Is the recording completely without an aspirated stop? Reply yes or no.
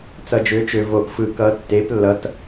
yes